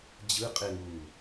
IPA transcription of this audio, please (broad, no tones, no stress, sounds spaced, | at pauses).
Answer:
d͡ʑ ɯ qʼ e ŋ uː